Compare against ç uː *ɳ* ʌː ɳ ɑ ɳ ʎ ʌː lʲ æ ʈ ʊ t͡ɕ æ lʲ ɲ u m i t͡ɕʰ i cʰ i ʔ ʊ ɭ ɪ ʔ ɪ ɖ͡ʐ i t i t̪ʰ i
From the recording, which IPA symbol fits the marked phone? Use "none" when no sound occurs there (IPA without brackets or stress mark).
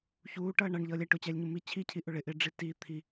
ʈ